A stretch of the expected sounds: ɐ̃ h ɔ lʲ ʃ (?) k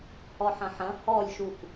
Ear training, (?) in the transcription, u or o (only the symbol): u